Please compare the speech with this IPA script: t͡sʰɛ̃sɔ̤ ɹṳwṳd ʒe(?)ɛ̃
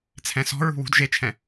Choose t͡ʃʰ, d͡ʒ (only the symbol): t͡ʃʰ